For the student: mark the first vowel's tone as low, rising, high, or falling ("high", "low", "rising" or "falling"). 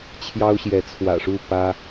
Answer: high